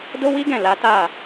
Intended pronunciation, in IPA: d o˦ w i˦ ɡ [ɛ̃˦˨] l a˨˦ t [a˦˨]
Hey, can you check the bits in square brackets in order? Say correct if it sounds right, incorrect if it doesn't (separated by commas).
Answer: correct, correct